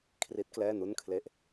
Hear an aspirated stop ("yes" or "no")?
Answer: yes